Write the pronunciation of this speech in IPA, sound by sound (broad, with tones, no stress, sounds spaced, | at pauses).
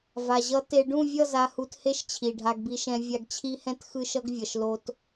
v a˨ ʑ ʌ˧ t e˧ ɖ ũ˦˨ vʲ ʌ˦˨ z a˧ h u˧ t h e˦ ʃ t͡ɕʰ i˨ ɖʱ a˧ ɡ b i˧ ʃ ɛ̃˧ vʲ a˧ ɡ t͡ɕʰ i˦ h ɛ̃˦ t x ɯ˦ ʃ ʌ˦ ɡ vʲ ʌ˨ ʃ l o˧ t